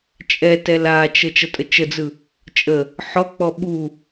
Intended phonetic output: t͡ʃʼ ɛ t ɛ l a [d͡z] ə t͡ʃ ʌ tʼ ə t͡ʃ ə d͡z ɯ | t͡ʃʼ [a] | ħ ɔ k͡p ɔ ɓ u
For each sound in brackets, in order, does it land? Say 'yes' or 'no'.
no, no

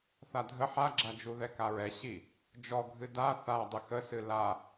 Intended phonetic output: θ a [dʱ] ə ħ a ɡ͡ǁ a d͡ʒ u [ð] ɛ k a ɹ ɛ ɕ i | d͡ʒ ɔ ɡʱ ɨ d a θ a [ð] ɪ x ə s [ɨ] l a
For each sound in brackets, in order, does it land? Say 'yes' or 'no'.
yes, yes, no, yes

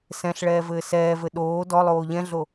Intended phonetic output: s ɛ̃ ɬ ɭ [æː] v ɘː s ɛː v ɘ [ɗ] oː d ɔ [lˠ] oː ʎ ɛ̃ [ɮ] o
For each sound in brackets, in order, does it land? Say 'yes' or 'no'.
no, yes, yes, yes

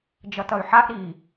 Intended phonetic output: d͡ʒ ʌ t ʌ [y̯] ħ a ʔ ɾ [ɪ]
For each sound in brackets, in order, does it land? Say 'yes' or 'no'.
yes, no

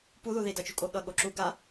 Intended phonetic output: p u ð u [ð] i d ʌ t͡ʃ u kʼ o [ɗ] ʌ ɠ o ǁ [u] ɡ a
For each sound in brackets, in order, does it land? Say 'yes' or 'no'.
yes, no, yes

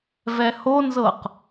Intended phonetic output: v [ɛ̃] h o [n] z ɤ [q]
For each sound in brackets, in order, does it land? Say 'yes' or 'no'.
no, yes, yes

